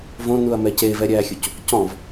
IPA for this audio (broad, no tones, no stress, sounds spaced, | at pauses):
v õ n u ɐ̯ m ɛ c e v ɛ ɾʲ æː xʲ u c | c ɔ̃ v